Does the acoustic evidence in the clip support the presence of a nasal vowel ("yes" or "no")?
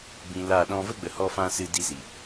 yes